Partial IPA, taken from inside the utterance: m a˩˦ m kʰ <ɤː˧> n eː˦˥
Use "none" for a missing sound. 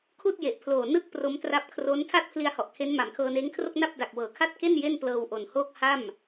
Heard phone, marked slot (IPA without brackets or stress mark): ɤː˧